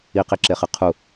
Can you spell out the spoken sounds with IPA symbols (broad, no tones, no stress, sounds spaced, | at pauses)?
i q i ǁ e χ ɨ qʰ u